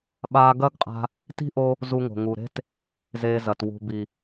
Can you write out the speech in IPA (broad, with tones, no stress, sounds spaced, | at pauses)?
ɓ aː˧ ɡ ɐ˦ ɡ qʼ a̤˧ | t i̤˦ ʔ o˧ | z u˧ ŋ o̤˨ ŋ u˨ ɾ e̤˦ t | z eː˧ z ɐ˨ t w ṳ˨ b i˨